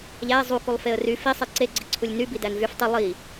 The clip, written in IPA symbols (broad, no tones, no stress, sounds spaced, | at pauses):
ʎ æ ɪ̯ zˤ u k u lˠ f e ə̯ r y f i sˤ e ǀ e ɡ͡ǀ i ǀʰ u lʲ n y b i d æ n v y f tˤ i lˠ i